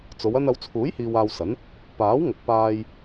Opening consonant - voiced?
no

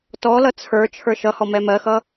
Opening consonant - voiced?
no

